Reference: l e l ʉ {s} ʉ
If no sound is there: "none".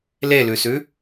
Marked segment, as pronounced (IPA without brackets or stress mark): s